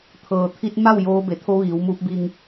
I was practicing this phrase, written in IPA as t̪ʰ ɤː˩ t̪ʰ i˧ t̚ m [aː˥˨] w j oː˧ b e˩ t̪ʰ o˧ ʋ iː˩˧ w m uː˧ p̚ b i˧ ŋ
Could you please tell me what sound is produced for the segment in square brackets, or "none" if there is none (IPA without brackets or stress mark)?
a˥˨